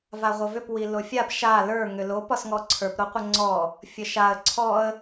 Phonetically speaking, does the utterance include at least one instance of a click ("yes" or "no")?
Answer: yes